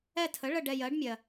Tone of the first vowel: falling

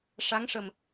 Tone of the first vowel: rising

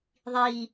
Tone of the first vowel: low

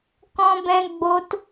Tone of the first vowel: high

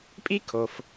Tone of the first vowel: high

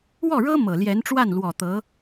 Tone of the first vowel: falling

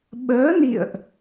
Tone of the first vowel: rising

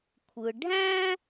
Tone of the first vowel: low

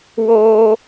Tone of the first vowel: high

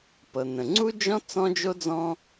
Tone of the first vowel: low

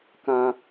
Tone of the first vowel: high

